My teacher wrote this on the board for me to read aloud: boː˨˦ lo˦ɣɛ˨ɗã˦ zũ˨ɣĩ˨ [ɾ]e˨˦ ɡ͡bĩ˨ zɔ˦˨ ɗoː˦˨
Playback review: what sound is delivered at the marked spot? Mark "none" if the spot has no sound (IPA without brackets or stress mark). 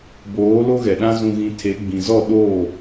tʰ